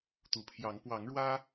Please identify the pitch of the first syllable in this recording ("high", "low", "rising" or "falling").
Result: low